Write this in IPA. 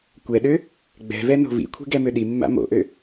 kʷɛɗø | ɡ͡bɛ̤vɛ no̤vḭkʷʰi̤ ɡɛmøɗimːa̰ mo̰ʔø

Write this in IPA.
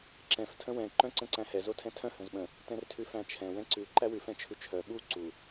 ǁɛ̃f tʰə̃wɛ̃ ǃœ̃ǀə̃ǀæ̃hɛ zotʰɛ̃tʰœ̃ hə̃zɓə̃ | tɛ̃rtʰʉfæ̃t͡ʃʰɛ̃ wɛ̃ǀʉ ǃæwʉ fɛ̃t͡ʃʰʉt͡ʃʰœ ɓu ǀu

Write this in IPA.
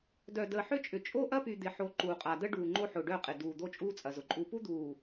dœ˨dəː˨ħʏ˦˨t͡ʃʼʏ˨ t͡ʃʼo˦ʔɐ˦py˨ d̪ɪ˨ħo˨˦ ǃuː˨qʼa˨ də˦ ɖuː˨ ŋ͡ǃo˦ħʊː˨ ɖœ˦˨qʼɪ˨duː˨ d̪o˦t͡ʃʼuː˦t͡sʼɐ˨zʊ˨ ǃʼu˨pu˦d̪uː˨

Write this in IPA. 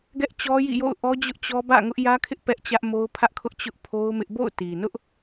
ɡɛ˦ʔt͡ɕɔ˦jḭ˦˨jo̰˦˨ʊ̯ ʔɔ˦d͡ʑʊ˦ʔt͡ɕɔ˦ bä̰˦˨ŋʊ˦ʔ jä˦kʰɪ˦ʔ pɛ˦ʔt͡ɕä˦ʔmo˦ʊ̯ pʰä˦ʔkʰʊ˦ʔ t͡ɕʊ˦ʔpʰo˦ʊ̯mɪ˦ʔ bo̰˦˨ʊ̯ti˨nʊ˦ʔ

